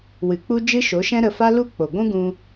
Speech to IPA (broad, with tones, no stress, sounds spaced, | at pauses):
w ɨ˨ k͡p u˦ d͡ʒ ɨ˦ ʃ o˨˦ ʃ ɛ̃˦ ɾ ə˧ f a˦ l u˦ k͡p o˨ ɡʷ ũ˦ ɡ ũ˧